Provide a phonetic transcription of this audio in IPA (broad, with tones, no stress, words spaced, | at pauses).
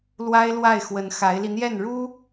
lwa˥ɪ̯lwa˥˩ɪ̯ xwə˧˥nxa˧˥ɪ̯li˧n̪jɛ˥˩n ɻu˥